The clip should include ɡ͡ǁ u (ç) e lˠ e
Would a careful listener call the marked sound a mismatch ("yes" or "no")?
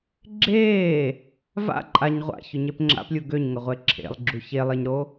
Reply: no